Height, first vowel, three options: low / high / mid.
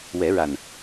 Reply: mid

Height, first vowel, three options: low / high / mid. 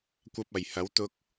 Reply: low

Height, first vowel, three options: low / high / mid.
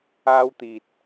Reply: low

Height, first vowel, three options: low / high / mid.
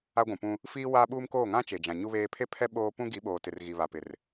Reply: low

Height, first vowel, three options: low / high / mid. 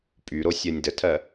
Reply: high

